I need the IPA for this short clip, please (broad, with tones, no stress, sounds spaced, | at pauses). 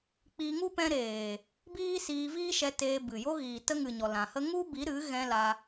k͡p iː˧ ŋ u˦ p ɛ̃˧ ɾ eː˨ | b iː˦ s iː˧ v iː˦ ʃ ɛ˧ t eː˧ b ɨ˨ j o˧ ɣ iː˨ t ə˧ ŋ ɨ˨ ɲ ɔ˨ l ã˨ h ə˦ ŋ u˦ b i˨˦ ɾ ɨ˨˦ ɣ ɛ̃˧ l a˧